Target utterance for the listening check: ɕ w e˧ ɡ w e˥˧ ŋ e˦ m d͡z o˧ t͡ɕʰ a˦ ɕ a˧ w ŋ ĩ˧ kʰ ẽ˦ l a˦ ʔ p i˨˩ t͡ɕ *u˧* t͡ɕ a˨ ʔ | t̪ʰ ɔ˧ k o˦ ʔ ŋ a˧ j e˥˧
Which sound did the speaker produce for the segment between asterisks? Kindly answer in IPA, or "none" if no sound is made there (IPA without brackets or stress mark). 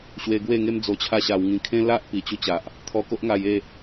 u˧